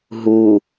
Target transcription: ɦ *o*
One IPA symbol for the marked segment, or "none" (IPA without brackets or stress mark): u